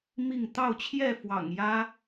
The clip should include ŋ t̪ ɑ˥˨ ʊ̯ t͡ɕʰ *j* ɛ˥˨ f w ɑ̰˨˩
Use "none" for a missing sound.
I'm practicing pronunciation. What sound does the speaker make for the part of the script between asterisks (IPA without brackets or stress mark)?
j